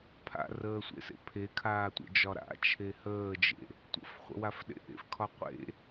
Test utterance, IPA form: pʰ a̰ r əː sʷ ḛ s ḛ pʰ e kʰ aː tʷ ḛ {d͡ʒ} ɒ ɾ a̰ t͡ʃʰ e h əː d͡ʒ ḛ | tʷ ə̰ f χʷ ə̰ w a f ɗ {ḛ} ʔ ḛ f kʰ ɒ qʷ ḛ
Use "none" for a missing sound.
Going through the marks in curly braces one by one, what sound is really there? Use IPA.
d͡ʒ, ḛ

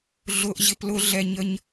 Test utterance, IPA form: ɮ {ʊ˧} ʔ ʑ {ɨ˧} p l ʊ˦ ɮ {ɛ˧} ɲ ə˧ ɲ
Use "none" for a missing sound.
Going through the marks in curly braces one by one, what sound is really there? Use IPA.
ʊ˧, ɪ˧, ɛ˧

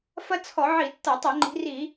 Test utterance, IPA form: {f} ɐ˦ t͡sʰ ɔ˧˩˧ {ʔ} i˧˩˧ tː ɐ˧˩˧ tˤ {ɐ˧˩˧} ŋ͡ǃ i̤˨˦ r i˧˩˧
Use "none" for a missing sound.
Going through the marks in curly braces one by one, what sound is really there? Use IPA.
f, ʕ, ɐ˧˩˧

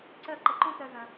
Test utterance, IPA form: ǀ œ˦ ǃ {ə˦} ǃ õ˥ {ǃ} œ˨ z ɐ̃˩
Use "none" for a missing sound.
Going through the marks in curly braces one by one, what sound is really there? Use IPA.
ə˨, t

